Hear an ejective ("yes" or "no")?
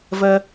no